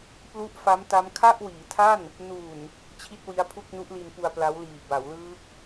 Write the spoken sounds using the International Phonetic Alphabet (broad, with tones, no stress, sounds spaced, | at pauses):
p l u˦˥ ʔ f a˦˥ m t a˦˥ m kʰ a˥˩ ʔ w iː˩˦ tʰ a˥˩ n | n uː˨˩ n | t͡ɕʰ i˥˩ t̚ w i˦˥ a̯ pʰ u˥˩ k̚ n u˦˥ ʔ l i˧ n p u˧ a̯ p l a˦˥ w l iː˨˩ b a˩˦ w l ɯː˦˥ k̚